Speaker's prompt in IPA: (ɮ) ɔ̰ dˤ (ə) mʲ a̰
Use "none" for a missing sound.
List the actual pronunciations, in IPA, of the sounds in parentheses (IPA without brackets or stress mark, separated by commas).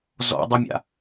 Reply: z, ə